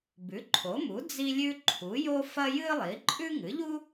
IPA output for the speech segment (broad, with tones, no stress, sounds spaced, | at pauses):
b ʉ˩˥ ǃʰ o˩˥ m u˩˥ d͡z i˥ lʲ ʉ˥ ǃʰ u˩˥ j o˥ f ɐ˥ j ɨ˥ lˠ i˩˥ ǃʼ ʉ˥ ŋ ɨ˩˥ ʎ u˥